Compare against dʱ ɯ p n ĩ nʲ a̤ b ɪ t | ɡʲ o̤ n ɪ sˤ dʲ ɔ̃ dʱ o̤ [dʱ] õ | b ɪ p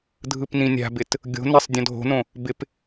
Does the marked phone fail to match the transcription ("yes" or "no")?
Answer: yes